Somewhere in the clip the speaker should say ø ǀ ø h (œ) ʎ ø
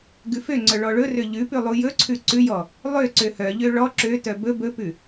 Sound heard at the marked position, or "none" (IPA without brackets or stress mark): œ